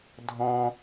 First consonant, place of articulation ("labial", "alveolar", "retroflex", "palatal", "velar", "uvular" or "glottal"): alveolar